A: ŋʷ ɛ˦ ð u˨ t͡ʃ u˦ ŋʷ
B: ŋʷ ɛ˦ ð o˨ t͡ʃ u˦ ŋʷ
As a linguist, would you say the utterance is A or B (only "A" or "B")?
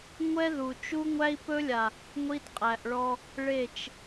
A